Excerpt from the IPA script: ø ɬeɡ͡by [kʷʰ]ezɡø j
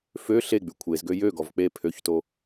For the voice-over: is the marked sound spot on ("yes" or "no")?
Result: yes